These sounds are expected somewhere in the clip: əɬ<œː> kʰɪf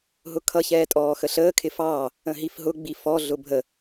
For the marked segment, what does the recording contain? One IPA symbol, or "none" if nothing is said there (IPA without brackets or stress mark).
əː